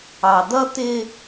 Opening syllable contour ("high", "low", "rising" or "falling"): low